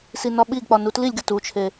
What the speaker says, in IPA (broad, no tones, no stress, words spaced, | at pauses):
sinɒɓiɡk͡pɒ nutlilʲɡʲɒt ut͡ʃʰe